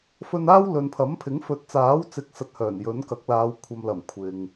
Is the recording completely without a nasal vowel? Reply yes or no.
yes